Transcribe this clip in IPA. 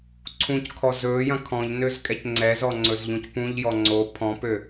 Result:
ǀʰ ũ c kʰ ɔ z ɵː j ɐ̃ kʰ ɔ̃ ʎ n ø z kʼ ɛ c ŋ͡ǀ ɛ z ɔ ŋ͡ǀ ɵ z ʎ ũ c p ũ ʎ j ɔ ŋ͡ǀ o pʰ ɔ̃ p ø

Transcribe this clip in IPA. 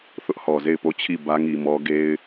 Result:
θ ʊ˦ ʔ h ɔ˨ z e˦˨ ɪ̯ p o˦˨ t͡ɕʰ i˦˨ b ä˦ ŋ i˨ m ɔ˦ ɡ e˦ ɪ̯

